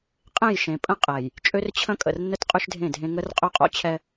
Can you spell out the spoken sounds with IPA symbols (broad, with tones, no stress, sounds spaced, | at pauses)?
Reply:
qʼ ẽ˦˨ j ʃ ẽ˨ pʼ ə̃˦ qʼ ɛ˨ j | t͡ʃʼ ø˦ r t͡ɕʰ ə̃˦ kʼ ə̰˨ r nː ə˦ t qʼ ʉ˦ ʃ dʱ ẽ˦˨ dʱ ẽ˦ ŋ ə˦ r qʼ ø˦ qʼ o̰˦ t͡ɕʰ ɛ˦